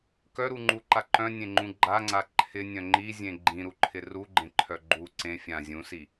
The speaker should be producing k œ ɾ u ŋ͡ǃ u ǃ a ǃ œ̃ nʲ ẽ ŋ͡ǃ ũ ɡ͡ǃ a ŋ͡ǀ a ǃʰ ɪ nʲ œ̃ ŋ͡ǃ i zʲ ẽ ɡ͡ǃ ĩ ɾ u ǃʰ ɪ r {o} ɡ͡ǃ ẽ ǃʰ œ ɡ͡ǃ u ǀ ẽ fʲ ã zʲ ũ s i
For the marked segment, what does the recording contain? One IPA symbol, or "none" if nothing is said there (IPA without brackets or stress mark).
u